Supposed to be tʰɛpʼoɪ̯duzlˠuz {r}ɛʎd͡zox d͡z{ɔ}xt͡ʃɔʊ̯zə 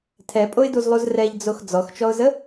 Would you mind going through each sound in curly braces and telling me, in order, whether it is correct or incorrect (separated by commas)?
correct, correct